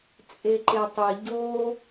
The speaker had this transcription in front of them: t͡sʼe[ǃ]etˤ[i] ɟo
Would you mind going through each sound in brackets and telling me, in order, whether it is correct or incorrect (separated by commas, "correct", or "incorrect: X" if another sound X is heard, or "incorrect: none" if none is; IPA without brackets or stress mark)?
correct, correct